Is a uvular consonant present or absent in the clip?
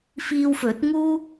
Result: absent